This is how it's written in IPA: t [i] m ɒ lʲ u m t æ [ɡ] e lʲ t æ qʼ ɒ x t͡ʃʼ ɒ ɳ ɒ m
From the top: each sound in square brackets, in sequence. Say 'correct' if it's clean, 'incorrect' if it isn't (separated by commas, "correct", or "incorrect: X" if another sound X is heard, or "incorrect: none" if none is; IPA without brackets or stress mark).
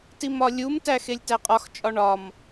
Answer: correct, incorrect: x